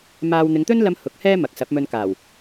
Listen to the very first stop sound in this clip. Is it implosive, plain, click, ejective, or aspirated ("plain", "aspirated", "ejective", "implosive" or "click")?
plain